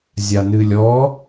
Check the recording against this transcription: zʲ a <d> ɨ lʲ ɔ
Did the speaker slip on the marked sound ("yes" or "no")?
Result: yes